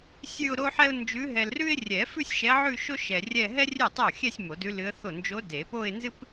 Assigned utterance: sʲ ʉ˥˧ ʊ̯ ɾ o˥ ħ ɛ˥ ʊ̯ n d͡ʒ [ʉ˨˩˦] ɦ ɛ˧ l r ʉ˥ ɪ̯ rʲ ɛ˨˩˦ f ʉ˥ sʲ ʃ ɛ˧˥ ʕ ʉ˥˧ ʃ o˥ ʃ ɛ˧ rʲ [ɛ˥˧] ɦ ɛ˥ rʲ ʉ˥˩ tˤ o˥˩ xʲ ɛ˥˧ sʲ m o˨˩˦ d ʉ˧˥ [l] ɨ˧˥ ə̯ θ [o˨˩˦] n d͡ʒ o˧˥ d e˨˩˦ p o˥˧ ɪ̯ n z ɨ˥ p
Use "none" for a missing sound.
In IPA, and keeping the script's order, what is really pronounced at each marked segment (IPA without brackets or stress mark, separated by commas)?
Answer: ʉ˧˥, ɛ˥˧, l, o˥˩